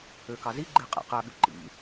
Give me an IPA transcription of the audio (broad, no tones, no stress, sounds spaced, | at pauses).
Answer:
ø k ɑ z i ɡ͡ǃ e qʼ ḛ q æ ɓ y ǃ ḭ